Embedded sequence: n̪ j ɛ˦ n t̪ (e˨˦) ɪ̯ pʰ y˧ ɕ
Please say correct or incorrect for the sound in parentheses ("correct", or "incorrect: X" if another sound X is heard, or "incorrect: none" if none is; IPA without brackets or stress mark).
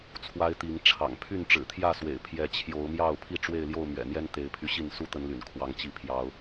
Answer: correct